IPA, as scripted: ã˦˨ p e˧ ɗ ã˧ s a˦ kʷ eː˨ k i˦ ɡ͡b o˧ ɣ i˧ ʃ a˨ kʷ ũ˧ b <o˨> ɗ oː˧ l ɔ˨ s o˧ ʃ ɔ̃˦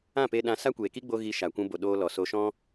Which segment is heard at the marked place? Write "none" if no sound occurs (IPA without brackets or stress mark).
o˨